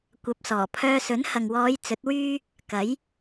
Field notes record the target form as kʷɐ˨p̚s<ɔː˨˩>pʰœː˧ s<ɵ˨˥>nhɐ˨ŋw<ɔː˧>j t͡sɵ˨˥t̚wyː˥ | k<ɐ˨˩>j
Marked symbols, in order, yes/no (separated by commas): yes, yes, no, no